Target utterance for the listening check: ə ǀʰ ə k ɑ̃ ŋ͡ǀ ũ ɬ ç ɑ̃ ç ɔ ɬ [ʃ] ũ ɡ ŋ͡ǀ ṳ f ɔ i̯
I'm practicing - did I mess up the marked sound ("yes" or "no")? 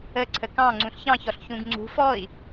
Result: yes